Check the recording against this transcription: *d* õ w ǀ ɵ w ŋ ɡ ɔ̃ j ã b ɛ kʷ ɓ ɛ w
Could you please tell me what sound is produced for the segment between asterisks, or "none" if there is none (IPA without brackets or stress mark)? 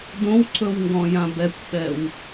d